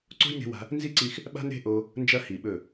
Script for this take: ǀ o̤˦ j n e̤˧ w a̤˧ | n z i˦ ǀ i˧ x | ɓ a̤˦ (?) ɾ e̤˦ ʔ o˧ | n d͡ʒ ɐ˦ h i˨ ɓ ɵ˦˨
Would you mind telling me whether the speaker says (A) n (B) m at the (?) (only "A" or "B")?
A